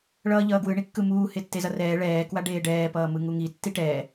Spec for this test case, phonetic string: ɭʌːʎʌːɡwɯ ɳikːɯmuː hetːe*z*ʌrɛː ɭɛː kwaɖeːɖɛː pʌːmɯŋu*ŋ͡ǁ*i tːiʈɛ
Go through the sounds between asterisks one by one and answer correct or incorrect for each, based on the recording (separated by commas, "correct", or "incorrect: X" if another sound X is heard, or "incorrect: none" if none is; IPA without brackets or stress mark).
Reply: correct, incorrect: ŋ